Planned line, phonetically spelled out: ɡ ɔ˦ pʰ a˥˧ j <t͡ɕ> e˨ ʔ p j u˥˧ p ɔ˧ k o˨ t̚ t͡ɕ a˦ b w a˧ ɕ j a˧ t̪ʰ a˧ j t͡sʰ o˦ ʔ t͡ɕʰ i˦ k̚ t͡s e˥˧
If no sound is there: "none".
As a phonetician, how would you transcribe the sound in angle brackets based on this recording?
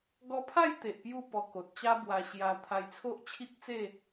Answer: t̪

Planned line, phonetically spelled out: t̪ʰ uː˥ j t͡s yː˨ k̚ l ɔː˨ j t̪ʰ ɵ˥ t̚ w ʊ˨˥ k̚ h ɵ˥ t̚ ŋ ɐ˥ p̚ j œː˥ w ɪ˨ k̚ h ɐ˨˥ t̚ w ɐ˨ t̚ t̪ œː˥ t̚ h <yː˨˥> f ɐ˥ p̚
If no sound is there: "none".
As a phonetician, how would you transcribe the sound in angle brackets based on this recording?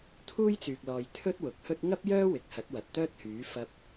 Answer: yː˨˥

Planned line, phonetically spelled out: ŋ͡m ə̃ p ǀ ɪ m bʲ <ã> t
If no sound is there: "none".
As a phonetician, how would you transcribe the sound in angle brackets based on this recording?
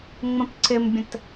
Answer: ə̃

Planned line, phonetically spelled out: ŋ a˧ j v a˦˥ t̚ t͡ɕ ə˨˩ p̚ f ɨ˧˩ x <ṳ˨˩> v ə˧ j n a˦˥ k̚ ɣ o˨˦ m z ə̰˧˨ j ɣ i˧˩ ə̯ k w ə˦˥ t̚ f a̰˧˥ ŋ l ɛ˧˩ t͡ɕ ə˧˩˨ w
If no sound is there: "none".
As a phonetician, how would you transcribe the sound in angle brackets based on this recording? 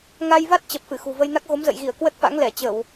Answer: ṳ˨˩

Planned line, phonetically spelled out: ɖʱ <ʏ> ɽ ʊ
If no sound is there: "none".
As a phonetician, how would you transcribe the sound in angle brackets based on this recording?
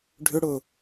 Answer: ʏ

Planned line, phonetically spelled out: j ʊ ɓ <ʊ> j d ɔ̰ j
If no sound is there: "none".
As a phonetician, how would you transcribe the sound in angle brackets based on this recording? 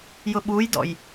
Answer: u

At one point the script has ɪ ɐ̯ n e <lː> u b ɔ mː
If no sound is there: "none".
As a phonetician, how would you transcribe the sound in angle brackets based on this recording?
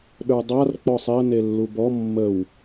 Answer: lː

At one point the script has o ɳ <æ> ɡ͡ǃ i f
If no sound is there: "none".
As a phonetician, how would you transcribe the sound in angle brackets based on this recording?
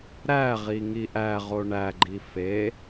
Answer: æ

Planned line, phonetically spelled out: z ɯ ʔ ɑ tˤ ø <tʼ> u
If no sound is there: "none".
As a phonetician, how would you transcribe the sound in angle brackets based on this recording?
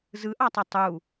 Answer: tˤ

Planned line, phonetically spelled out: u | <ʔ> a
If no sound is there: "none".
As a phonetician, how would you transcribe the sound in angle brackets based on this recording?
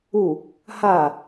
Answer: h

